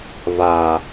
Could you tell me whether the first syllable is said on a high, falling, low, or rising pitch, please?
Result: low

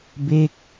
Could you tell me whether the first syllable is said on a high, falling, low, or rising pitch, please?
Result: falling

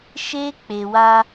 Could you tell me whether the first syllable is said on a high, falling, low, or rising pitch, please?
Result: high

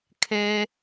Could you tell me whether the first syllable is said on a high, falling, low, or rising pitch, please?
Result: high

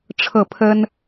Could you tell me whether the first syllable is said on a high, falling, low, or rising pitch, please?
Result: falling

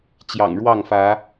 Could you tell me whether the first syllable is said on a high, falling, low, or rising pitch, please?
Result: low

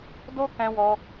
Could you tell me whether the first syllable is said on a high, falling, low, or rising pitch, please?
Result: high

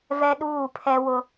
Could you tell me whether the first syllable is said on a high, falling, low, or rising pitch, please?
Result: high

